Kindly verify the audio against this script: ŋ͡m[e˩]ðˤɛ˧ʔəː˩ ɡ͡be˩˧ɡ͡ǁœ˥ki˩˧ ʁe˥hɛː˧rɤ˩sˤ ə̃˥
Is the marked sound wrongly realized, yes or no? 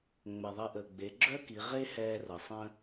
yes